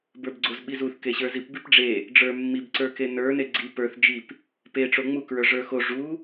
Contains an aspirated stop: no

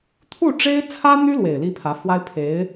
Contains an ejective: no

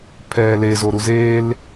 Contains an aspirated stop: yes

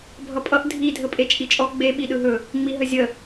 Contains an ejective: yes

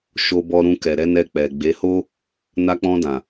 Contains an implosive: no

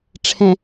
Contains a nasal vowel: yes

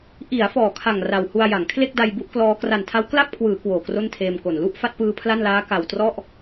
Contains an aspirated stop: yes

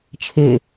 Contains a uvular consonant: no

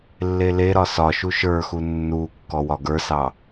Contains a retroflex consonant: no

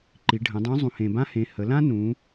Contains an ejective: no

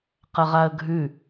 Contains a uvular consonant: yes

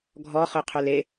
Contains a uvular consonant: yes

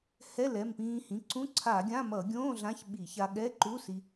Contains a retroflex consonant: no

